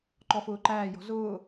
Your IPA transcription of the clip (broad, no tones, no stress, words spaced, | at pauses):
ǃɔfʊːǃæː jɔ̤zʊː